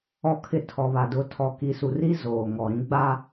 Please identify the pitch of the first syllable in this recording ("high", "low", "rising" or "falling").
low